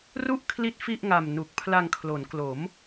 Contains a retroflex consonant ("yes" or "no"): no